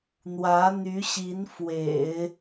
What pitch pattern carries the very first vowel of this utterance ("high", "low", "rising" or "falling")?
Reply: rising